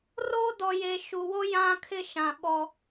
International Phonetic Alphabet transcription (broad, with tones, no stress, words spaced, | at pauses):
ro˦ dɔ˨je˨ ʃu˨wo˦ jã˦kʰɪ˦ʃã˨ ɓɔ˦